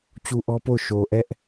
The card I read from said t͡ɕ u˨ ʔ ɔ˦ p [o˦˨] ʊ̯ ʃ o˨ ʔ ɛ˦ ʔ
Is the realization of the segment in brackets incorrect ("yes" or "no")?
no